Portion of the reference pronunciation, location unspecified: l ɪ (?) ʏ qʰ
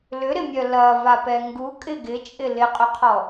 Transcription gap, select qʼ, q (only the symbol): qʼ